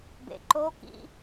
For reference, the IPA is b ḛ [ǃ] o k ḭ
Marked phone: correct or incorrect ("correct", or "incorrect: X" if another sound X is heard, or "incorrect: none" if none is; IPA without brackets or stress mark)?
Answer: correct